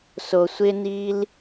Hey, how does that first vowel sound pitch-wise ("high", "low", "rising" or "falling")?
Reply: low